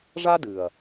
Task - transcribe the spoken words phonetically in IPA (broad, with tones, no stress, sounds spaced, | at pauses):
ʐ a˦ d ɨ˨ ɐ̯